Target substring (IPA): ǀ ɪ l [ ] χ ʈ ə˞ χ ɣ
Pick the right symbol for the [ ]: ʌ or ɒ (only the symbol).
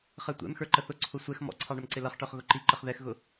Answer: ʌ